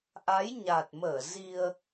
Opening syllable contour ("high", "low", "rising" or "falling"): rising